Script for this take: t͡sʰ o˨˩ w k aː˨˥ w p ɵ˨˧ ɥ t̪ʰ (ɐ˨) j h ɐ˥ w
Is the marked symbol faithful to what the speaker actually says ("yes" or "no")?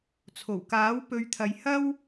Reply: yes